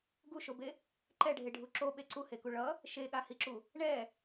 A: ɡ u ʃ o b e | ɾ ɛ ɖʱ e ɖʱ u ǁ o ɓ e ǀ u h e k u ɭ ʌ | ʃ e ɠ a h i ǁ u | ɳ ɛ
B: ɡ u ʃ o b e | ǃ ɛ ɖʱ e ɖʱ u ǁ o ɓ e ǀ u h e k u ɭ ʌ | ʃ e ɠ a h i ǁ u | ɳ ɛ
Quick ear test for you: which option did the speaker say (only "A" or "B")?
B